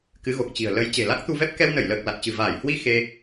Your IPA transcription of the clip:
k ɨ˨˦ ɣ o˨˩ k̚ t͡ɕ i̤˨˩ ə̯ l ə˨˦ j t͡ɕ e̤˨˩ l a˦˥ k̚ t̪ u˧ v ɛ˦˥ p̚ k ɛ˧ w n ə˧˩ j l əː˨˩ k̚ l a˨˩ t̚ t͡ɕ ɨ̤˨˩ v aː˧˩ j h w i˧ x e˧

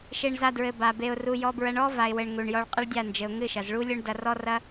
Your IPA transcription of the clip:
ʃ e˧ ɳ z a˧ d ɹ ɘ˨ b a˨ b e˧ ʊ̯ r u˧ j ɔ˧ b ɹ ɐ˧ ɳ ɔ˦ v a˨ ɪ̯ w ɘ˨ ɳ ŋ u˨ ɳ j ɔ˧ ɭ qʼ ɘ˦ ɭ dʲ a˦˨ n d͡ʒ ɘ˨ ʊ̯ ŋ ɨ˦˨ ʃ ɐ˨ z ɭ u˦ lʲ o˦ ɳ d ɐ˧ r ɔ˦ r ɐ˦

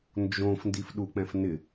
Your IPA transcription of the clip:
n d͡ʒ õ f n d i f ɗ u k͡p ɛ̃ f n ɪ

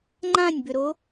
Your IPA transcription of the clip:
ŋ͡ǃ ã nʲ b ʏ ɾ o

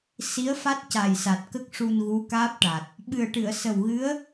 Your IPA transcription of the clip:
s i˧˥ ə̯ f a˦˥ t̚ c a˨˩ j s a˨˩ t̚ k ə˦˥ k̚ ʂ u˧ n ɣ u˧˥ k aː˦˥ p̚ ʈ a˨˩ t̚ | ɓ ɨ˨˩ ə̯ ʈ ɨ˨˩˨ ə̯ s ə˨˩ w ɣ ɨ˧˥ ə̯

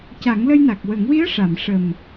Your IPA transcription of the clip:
c a˨˩˦ ŋ l ə˧ j n a˨˩ k̚ w ə˨˩˦ ŋ w i˧˥ ə̯ ʂ a˨˩˨ m ʂ ə˨˩ m

